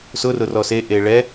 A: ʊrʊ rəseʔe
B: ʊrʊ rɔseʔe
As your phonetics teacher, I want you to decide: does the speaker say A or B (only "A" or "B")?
B